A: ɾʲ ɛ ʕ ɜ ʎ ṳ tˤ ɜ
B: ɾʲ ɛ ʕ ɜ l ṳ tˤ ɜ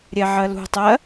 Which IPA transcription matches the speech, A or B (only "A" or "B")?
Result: B